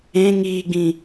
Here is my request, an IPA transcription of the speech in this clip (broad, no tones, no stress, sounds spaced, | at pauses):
ẽ ŋ iː ɡ͡b ĩ